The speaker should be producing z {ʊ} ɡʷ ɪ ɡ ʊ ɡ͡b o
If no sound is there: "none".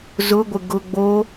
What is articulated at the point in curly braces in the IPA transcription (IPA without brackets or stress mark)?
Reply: ʊ